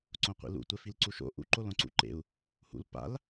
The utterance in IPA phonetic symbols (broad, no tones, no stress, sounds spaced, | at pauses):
ǀ õ qʷ ḭ l ṵ tʷ ɛ f i l ǀ u ʃ o̰ ʔ ṵ ǃ o l õ ǀ ṵ ǃ ḛ u̯ | h ṵ l p a̰ l